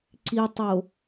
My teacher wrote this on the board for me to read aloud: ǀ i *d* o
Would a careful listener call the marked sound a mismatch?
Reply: yes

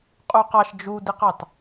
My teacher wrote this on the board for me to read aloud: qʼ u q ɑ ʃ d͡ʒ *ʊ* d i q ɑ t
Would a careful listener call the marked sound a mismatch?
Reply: yes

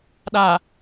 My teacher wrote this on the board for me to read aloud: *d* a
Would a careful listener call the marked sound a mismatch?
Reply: yes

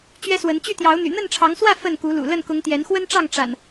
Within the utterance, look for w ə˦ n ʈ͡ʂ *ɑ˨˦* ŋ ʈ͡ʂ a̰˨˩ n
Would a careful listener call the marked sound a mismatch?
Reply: yes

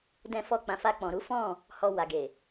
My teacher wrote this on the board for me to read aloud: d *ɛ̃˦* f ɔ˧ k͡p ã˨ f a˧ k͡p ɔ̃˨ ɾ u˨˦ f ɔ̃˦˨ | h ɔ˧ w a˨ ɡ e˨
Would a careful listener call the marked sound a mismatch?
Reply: yes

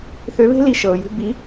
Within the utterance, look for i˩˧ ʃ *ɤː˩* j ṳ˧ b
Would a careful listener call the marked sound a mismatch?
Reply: no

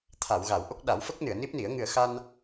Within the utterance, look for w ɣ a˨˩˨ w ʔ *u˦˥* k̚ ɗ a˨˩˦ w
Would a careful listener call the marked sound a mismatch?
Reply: yes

